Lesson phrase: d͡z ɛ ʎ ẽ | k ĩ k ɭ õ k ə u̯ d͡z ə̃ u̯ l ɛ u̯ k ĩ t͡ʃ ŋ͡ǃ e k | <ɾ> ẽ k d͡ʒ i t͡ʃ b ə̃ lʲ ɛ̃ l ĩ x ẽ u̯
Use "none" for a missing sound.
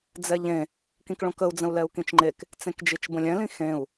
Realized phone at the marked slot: t͡s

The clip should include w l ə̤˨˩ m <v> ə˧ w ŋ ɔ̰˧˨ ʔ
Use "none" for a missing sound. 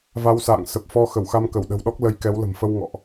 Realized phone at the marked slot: f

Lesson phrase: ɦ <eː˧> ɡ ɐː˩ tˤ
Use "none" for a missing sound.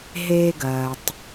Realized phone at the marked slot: eː˧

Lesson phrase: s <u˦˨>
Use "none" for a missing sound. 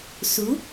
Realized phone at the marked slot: u˨˦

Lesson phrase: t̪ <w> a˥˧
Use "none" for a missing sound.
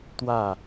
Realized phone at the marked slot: w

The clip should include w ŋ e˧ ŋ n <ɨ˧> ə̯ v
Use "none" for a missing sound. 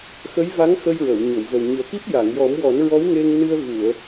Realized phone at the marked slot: ɨ˧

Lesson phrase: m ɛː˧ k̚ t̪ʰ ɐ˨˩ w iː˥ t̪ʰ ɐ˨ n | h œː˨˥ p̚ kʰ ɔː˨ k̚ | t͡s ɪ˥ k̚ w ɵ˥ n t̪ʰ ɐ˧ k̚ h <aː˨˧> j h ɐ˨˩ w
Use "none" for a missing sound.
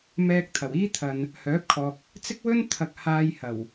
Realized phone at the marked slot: aː˧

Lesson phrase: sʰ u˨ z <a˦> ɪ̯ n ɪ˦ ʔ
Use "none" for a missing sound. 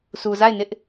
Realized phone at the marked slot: a˦˨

